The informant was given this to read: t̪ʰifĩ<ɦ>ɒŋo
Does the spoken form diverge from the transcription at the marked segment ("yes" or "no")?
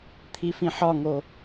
yes